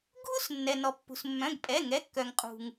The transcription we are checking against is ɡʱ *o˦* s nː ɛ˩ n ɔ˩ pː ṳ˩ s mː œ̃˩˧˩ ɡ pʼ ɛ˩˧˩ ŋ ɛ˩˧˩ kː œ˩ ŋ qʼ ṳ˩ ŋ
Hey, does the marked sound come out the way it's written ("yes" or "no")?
no